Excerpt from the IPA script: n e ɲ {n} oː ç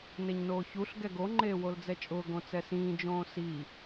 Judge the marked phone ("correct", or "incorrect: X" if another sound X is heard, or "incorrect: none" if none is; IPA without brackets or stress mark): correct